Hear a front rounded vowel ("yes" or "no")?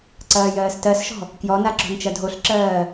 no